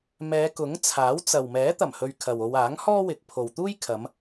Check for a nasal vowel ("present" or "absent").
absent